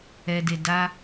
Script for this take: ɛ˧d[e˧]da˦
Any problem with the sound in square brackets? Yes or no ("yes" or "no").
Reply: no